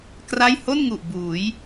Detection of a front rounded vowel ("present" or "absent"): absent